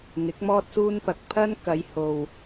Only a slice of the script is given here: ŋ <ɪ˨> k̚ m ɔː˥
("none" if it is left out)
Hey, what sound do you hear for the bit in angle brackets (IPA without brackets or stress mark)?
ɪ˨˥